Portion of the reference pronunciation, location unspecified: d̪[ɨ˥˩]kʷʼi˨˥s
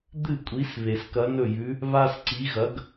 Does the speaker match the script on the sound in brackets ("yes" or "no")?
yes